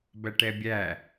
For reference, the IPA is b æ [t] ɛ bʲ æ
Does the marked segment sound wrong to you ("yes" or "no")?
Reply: yes